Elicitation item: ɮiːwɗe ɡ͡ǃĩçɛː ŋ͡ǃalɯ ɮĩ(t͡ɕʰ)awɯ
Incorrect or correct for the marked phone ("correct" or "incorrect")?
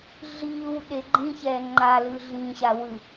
incorrect